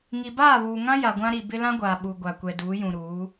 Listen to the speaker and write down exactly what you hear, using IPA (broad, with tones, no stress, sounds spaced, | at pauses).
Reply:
ŋ i˨ b aː˦˨ β uː˨ ŋ ã˦ j a˨ ɡʷ ã˦ ɾ i˨ b ɪ˦ l ã˦ ɡʷ aː˨ ɓ u˨ ɡʷ a˨ kʷ ɛ˨ d uː˨˦ j ũ˨ ɾ uː˨˦